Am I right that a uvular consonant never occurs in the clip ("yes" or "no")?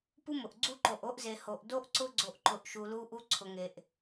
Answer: yes